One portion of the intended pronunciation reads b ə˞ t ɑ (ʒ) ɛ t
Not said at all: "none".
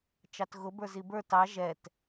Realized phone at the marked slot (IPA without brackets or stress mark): ʒ